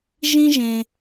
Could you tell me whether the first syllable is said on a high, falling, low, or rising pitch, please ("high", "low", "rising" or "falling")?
high